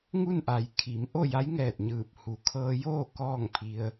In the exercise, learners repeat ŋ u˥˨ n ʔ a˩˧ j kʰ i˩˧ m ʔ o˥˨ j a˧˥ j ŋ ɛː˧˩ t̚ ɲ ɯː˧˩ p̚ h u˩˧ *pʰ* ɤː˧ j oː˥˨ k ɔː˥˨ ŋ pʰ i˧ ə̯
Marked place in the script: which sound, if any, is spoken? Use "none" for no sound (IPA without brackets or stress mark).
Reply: kʰ